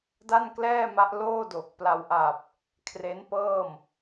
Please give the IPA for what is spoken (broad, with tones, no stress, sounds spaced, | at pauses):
d a˥˩ n k l ɛː˥˩ m a˦˥ ʔ l oː˥˩ d o˨˩ k̚ p l a˧ w ʔ a˨˩ p̚ | kʰ r e˦˥ n p ɤː˥˩ m